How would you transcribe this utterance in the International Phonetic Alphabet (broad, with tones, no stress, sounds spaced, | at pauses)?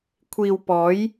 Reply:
kʷʰ iː˨ w p ɔː˨˥ j